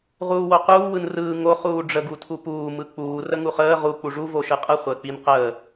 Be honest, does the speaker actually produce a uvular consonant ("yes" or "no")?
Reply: yes